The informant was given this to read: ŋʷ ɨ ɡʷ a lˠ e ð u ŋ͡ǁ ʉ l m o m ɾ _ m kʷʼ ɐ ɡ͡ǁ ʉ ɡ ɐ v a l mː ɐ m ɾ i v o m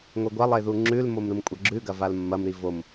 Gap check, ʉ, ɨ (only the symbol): ɨ